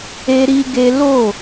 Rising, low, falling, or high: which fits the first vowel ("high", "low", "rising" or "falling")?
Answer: high